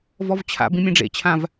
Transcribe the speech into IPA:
vɔvt͡ɕʰa̰bĩ mʲẽɖ͡ʐḛt͡ɕʰãv

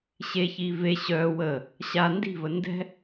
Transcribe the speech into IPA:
ɕeçiː ve ɕœː wə | ɕa ndi̤və ndɛ̤

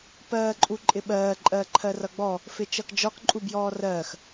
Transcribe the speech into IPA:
pɜːǃʼuǃʼɪɓɜː ǃʼɜːǃʰɜrʌɡ͡bɔ | fɪt͡ʃʌkd͡ʒɒk ǃʼubjɔːrɜːx

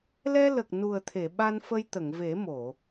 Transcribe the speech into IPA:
lɛ˧lə˨˩k̚ nu˨˩ə̯t̪ʰe˨˩˨ɓa˧nfə˧j t̪ə˨˩˨ŋve˨˩˦mo˨˩˨

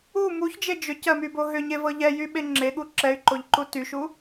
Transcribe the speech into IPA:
u muçd͡ʒe d͡ʒʏcɜmybo ɦʏɲevɤ ʎɛjyɓe ŋ͡ǁeɠu ǁɛy̯ǃoʎǃu tyʃu

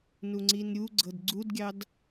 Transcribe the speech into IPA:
nuŋ͡ǀinɾʲuɡ͡ǀɤd ɡ͡ǀudɡʲɑd

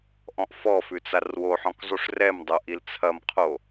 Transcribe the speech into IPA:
ʔɔ̃ʔfɔfʉ t͡sarwoħɔ̃k zˤuʂrɛmdˤo ʔilt͡sʰɐmqʰo

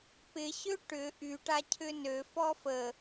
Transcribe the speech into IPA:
pɪɕø ʈʏ ʔyʈacʰʏ nøfɔ fə

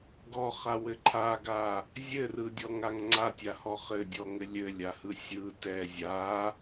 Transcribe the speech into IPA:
ɡɔχawɘ ǃʰaɡa | zʲɘrɯdʲɔŋaŋ ŋ͡ǀatʲahɔ χɘdʲɔŋɘ lʲɘlʲahɯ sʲɯ tɛ zʲa

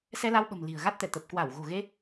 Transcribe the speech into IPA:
sɛ˧la˧wɓə̤˨˩m li̤˨˩ə̯ɣa˦˥t̚t̪ɛ˧˩ t̪ə˨˩p̚ kwa˧˩w ɣo̤˨˩ɣe˧

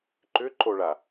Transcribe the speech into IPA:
ǃʏǃoɭa

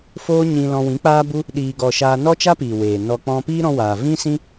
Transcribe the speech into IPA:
foː˦ɲĩ˧ lɔ̃˧wĩ˨˦k͡paː˦bu˦ | ɗiː˧ɡɔ˧ ʃaː˧nɔ˦t͡ʃa˦piː˨ weː˨nɔ˧ k͡pɔ̃˧piː˦ɾɔ̃˧ waː˨ vĩ˦sĩ˦

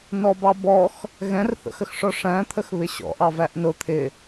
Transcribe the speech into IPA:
nɔbɑbɔx | ɣɛ̃rθə̰xəxʂɔ ʂæ̃ t̪ʰəxβɪɕɔ̰ʔɑ væʔnʊ t̪ʰɪ

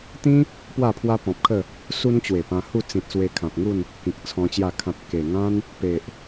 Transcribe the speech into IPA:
t̪ĩ˦ | pwa˥˧pʰwa˦pɔ̃˨p̚kʰə˥˧ | su˦nt͡ɕwe˨˩pã˧ hu˥˧t͡sĩ˨t̚swe˧ kʰã˨p̚ŋu˥˧n | kĩ˨k̚t͡sʰɔ̃˧t͡ɕja˥˧ kʰã˨t̚ ke˨˩ŋã˦n | pe˨ʔ

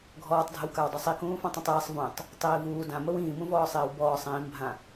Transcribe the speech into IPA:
ɡʱɔːtˤdʱəwkaw dˤusˤikũːfãtˤ ĩtˤiːsˤ vũtˤ | tˤiːvuː dãməw ĩːmũvɔːsˤiːw bɔːsˤ ĩːmbʱã

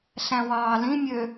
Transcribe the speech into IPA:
ɬæ̃wɑːlĩmʲø

